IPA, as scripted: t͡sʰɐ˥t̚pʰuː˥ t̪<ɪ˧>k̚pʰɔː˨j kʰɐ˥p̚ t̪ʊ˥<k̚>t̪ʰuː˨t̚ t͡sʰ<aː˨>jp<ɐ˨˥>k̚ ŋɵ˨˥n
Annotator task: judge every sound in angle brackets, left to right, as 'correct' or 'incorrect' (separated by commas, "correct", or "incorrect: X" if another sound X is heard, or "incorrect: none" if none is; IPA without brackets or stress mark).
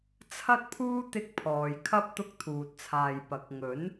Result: incorrect: ɪ˥, correct, correct, correct